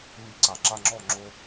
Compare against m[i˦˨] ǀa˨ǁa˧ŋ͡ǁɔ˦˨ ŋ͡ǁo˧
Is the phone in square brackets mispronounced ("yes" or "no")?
yes